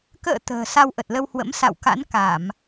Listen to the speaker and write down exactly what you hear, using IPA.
k ə̰ː˧˨ t̪ ə̤ː˨˩ s a˧ w ʔ ə˨˩ t̚ l ə˧ w h w ə̰˧˥ m s a̰˧˨ w k a̰˧˥ n k a˧˩˨ m

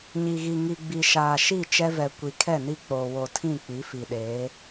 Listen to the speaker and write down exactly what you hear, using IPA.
ɲ i˨ ɣ i˨ ŋ i˨ ɡ͡b i˨ ʃ aː˨ ʃ i˦˨ t͡ʃ ɛ˦ v ɛ˨ kʷ i˨ kʰ ɛ˦˨ n i˦ k͡p oː˨ w o˨ tʰ ĩ˦˨ k͡p i˨˦ f i˨ ɗ eː˨˦

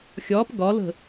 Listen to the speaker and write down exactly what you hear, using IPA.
xʲ ɒː p ɡ ɒ l ə̤

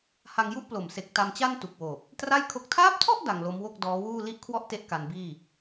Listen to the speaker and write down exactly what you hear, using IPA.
h a˧ ŋ j u˥˩ ʔ p l o˨˩ m s e˨˩ k̚ t a˧ m t͡ɕ a˥˩ n t u˨˩ k̚ w oː˨˩ p̚ | t r a˥˩ j kʰ o˦˥ k̚ tʰ aː˦˥ p̚ tʰ ɔ˥˩ ʔ d a˧ ŋ l o˦˥ m w o˥˩ k̚ d ɔː˦˥ w uː˥˩ l i˥˩ ʔ kʰ w ɔ˥˩ ʔ t e˦˥ ʔ k a˧ n b iː˥˩

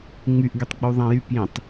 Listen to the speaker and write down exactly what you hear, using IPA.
ŋ͡m y ʔ ɡ y tˤ ɡ͡b u ðˤ æ̃ j y p j ĩ tˤ

